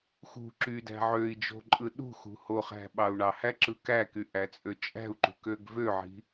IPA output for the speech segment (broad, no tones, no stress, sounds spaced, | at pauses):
x ṳ ǁ y d æ̤ ʕ ø i̯ d͡ʒ o̤ ǃʼ ɯ ɗ ṳ x ṳ h o χ æ̤ ɓ ɑ u̯ ɳ ɑ h æ ǁ ɯ k æ k y ʔ æ t͡sʼ ø t͡ʃʼ æ̤ u̯ ǃ ṳ k ø ɡ v ø ʕ i̤